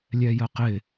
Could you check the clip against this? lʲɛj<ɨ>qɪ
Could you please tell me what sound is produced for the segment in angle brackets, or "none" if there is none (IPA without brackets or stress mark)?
ə